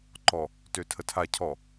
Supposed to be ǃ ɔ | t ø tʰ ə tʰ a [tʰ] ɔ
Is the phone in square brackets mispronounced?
yes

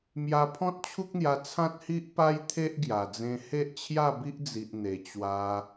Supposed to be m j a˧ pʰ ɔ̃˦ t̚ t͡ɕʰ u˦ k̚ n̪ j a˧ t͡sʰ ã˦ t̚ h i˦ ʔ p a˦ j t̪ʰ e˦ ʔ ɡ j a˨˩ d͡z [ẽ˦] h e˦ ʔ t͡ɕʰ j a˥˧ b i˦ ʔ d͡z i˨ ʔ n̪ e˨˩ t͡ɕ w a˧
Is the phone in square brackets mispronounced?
yes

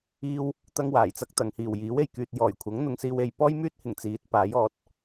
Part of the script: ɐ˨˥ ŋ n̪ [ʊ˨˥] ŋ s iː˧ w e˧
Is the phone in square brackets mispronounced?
yes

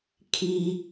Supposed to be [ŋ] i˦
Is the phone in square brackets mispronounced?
yes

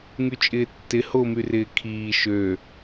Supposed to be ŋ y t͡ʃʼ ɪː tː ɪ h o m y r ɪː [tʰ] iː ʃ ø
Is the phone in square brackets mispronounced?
yes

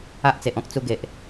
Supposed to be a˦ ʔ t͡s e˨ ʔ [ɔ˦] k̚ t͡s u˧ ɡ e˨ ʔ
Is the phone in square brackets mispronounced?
yes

